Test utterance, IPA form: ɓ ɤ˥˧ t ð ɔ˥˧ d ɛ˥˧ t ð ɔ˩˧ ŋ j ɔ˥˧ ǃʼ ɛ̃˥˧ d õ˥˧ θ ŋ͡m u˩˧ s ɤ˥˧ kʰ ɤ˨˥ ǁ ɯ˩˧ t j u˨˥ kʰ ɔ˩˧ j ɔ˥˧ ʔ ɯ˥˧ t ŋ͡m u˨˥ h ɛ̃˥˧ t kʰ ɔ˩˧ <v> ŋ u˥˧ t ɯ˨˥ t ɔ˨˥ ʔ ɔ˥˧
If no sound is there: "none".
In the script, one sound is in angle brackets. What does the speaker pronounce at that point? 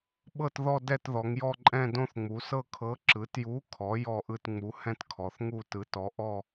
θ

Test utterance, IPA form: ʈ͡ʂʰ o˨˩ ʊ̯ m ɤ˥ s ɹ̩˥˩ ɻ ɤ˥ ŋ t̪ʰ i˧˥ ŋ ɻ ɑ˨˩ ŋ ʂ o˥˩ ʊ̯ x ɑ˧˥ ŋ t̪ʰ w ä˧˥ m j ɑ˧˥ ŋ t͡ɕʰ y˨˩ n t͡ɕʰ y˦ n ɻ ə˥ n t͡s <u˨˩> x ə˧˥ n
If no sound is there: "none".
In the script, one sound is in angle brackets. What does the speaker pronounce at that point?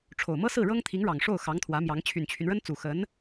u˨˩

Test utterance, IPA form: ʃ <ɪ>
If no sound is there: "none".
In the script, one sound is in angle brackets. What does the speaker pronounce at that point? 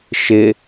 ɪ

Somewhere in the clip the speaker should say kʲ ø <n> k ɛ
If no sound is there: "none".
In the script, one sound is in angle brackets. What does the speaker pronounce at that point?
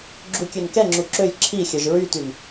n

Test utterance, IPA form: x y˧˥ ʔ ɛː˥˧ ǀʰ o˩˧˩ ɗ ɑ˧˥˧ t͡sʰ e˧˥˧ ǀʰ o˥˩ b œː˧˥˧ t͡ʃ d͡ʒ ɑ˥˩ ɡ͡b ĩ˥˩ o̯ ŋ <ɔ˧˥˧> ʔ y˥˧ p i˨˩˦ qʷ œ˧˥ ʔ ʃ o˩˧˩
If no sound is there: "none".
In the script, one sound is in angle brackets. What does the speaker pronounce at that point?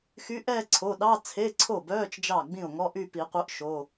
ɔ˧˥˧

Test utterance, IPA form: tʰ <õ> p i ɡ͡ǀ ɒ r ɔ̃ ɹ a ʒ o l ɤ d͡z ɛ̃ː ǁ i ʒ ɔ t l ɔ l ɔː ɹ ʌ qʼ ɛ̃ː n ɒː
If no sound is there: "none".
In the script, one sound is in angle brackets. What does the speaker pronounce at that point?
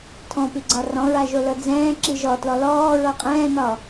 ɔ̃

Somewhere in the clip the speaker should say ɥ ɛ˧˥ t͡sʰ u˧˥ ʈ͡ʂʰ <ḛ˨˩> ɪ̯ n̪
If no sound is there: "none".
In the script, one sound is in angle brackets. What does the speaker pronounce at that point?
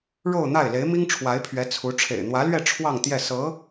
ḛ˨˩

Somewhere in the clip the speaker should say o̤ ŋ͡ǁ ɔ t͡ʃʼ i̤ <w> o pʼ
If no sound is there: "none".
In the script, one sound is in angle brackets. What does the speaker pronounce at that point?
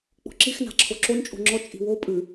w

